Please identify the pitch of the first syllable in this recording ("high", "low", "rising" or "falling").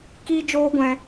high